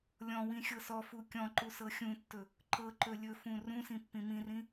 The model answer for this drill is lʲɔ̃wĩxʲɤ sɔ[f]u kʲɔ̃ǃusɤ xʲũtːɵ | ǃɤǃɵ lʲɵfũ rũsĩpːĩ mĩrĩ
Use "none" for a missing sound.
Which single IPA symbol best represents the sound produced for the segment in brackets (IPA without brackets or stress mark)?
f